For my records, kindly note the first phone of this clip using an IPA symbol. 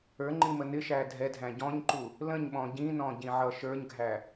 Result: ə˞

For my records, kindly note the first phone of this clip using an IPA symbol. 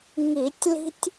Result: ŋ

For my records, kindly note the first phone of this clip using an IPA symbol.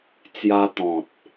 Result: t͡s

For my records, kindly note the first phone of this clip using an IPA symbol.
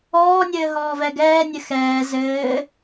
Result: ɔː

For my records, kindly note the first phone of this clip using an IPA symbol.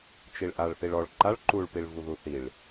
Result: t͡ʃ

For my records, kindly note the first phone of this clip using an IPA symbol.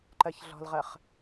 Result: ǃ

